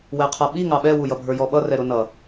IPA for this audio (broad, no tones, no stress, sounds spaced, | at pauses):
w ɛ qʰ ʌ ɓ i ŋ ɑ ɓ ɛ w u j ʌ bʱ ə˞ j ɔ ɓ ʌ r ɛ ɾ ʊ n ʌ